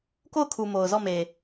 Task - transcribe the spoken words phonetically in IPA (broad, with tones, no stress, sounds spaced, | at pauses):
k o˦˨ ʊ̯ kʰ u˨ m o˨ ʊ̯ z ɔ˦˨ m e˨